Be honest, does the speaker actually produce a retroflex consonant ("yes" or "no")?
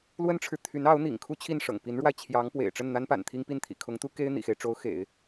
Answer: yes